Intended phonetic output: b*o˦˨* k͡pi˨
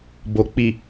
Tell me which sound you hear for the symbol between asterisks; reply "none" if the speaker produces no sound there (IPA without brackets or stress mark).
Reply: o˨